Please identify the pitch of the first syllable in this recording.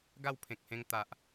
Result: falling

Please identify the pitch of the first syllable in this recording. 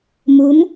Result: rising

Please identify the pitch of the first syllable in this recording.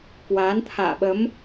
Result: rising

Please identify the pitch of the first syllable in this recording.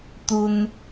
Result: low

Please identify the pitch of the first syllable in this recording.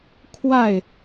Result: falling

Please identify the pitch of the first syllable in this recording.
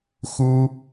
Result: high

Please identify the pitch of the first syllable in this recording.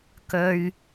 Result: low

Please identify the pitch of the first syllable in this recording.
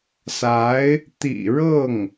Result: rising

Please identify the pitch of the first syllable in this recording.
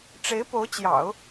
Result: rising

